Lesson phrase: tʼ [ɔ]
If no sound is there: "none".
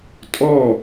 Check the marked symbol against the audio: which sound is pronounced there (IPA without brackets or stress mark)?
ɔ